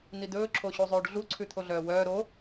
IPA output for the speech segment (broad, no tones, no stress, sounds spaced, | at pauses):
n̪ i d̪ ɵː ǁʰ o ɕ u zˤ ʉː ɖ ɮ u ǀʰ ʉ t̪ʰ o ɮ œː w œː ɾ o